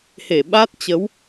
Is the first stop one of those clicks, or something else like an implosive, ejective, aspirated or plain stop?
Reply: implosive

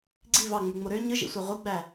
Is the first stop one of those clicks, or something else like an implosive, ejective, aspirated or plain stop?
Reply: click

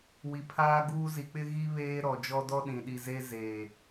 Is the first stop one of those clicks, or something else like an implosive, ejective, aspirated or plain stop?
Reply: aspirated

